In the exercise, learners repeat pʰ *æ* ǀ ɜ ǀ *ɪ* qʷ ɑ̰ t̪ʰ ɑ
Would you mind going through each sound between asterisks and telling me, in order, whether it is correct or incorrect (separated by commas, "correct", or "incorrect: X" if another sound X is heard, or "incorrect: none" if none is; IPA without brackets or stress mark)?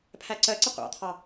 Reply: correct, correct